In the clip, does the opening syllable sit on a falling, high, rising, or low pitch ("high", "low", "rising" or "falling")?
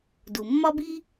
low